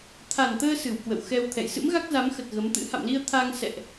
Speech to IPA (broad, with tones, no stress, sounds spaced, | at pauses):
t̪ʰ a˨˩ n t̪ əː˧ s ɨ˧˩ w k w ə̰˧˨ w x ɛ˧ w t̪ʰ ɛ̰˧˨ j s ɨ̰˧˥ m ɣ a˦˥ k̚ z a˨˦ m x ə˨˩ t̚ ɣ ə˨˦ m t̪ ɨ̰˧˥ h a̰˧˨ m l i˧ ə̯ t̪ʰ a˧ ŋ s ɛ̰˧˨ ʔ